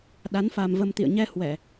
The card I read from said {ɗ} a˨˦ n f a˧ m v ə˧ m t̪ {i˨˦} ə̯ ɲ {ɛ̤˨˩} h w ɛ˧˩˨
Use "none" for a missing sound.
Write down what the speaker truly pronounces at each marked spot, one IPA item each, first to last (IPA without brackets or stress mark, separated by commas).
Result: ɗ, ḭ˧˨, ɛ˧